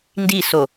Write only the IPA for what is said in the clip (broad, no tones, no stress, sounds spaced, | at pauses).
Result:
n d i s o